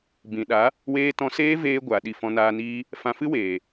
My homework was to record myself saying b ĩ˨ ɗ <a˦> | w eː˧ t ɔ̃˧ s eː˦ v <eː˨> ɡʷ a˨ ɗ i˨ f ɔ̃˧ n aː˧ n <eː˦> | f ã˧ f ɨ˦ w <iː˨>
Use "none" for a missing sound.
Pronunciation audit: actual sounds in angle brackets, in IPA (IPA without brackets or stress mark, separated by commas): a˨˦, eː˧, iː˦, eː˨